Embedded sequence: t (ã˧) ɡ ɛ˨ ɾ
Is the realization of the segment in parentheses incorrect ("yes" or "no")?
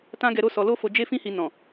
no